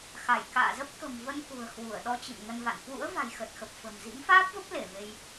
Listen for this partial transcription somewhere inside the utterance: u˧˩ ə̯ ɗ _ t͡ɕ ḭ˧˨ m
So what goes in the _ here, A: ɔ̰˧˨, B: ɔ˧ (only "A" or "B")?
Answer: B